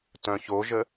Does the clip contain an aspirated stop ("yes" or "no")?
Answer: no